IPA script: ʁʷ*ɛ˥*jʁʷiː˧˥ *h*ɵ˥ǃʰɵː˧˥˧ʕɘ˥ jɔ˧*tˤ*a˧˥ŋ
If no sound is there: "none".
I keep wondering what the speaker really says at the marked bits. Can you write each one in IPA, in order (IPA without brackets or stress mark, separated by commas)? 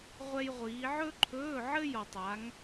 ɛ˥, ʕ, tˤ